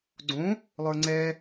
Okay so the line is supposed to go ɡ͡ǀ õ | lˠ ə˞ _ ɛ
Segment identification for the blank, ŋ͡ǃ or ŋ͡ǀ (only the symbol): ŋ͡ǀ